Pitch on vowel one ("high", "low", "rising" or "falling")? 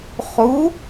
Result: rising